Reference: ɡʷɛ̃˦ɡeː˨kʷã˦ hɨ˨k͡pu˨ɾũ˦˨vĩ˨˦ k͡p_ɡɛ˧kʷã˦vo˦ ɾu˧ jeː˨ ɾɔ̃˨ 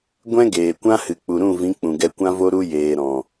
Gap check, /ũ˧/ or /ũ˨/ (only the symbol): ũ˨